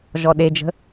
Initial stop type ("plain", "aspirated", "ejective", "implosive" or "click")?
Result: implosive